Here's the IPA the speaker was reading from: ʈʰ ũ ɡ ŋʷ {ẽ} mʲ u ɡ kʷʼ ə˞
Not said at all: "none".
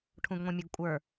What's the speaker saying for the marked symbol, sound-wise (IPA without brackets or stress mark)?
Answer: ĩ